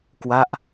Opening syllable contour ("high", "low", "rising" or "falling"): falling